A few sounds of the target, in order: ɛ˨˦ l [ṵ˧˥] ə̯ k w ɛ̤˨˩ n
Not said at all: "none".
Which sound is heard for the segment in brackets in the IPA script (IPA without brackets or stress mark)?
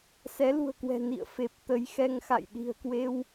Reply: ṳ˨˩